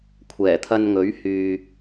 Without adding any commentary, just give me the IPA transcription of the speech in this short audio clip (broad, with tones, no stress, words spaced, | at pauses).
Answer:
kʷʰɛː˨˩t̪ʰɐ˧nŋɵ˨˥ɥ hyː˨